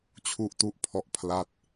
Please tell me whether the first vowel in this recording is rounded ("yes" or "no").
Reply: yes